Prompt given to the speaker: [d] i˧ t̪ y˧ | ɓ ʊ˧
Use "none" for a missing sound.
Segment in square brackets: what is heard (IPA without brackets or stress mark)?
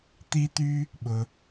t̪